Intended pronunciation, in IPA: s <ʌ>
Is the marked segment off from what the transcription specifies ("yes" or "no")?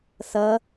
no